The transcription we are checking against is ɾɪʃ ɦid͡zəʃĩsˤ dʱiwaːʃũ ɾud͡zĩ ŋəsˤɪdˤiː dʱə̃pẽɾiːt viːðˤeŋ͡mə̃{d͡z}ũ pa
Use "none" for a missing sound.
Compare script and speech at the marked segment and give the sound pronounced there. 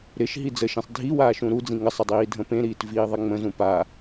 z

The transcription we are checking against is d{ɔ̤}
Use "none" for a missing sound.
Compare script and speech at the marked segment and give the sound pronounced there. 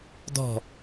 ɔ̤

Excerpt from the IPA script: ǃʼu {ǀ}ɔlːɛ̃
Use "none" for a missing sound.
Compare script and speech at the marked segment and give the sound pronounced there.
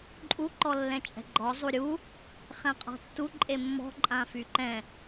ǃ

